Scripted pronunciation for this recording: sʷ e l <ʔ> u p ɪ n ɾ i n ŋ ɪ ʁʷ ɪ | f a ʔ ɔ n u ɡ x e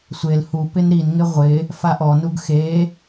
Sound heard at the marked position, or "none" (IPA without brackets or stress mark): h